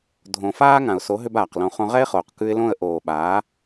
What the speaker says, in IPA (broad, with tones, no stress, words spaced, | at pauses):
dʱõ˨faː˦ ŋã˨ʊ̯so˨˦ ɦʏ˦baː˨qlõ˧ χõ˧ʁɛ˦ɪ̯χoː˨q kʉ˧ɪ̯lõ˦˨ə̯ ʔoː˨ɓaː˨˦